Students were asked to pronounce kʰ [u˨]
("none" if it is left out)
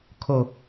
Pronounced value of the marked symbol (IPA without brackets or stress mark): o˨